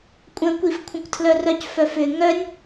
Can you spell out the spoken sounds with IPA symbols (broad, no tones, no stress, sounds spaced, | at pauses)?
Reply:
kʷʼ ə̃ kʷ i f kʷʰ ə̃ kʷ tʰ l œ r œ c f œ f ʏ ŋ œ nʲ